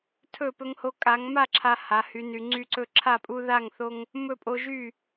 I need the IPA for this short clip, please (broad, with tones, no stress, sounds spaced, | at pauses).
tʰ ɵ˥˨ p ɵ˦ ŋ h o˦ kʼ a˨˦ ŋ m a˥˨ ǁʰ a˦ h a˨˦ h y˨˦ n y˨˦ ŋ͡ǀ y˦ ǀ ɵ˥˨ ǁʰ a˥˨ pʼ u˦ ð a˥˨ ŋ θ o˦ ŋ | m ɵ˥˨ pʼ o˦ ʒ y˥˨